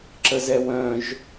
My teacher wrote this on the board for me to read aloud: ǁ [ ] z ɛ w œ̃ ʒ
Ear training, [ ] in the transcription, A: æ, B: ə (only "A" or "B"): B